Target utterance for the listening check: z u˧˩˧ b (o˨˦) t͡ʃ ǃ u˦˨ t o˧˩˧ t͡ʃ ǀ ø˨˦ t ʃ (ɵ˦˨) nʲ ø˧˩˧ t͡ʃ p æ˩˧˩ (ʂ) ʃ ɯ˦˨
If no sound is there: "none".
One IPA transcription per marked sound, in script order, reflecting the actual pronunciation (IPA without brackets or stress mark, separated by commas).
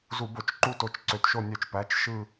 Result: o˧˩˧, o˦˨, t͡ʃ